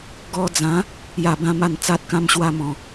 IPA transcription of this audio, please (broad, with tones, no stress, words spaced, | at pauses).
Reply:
ɡɔ˧d͡zã˨˦ | ja˥˧bã˦ ma˥˧nt͡sa˦t̚kã˦m ɕwa˦mɔ̃˨˩